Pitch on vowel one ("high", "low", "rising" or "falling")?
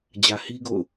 low